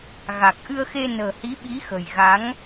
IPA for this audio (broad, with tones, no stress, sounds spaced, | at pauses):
ɣ a˨˩ k̚ ʔ ɨ˧ ə̯ x e˧ n ə̤ː˨˩ h i˨˦ ɓ i˨˦ x ə̤˨˩ j ɣ a˨˦ ŋ